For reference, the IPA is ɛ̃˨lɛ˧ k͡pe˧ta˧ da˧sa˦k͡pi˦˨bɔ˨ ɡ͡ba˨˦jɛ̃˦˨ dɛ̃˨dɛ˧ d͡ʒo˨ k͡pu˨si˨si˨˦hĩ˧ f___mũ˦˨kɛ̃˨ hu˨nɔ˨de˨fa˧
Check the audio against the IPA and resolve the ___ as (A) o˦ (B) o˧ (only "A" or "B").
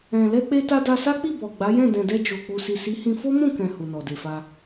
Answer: A